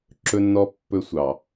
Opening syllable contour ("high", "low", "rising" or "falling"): high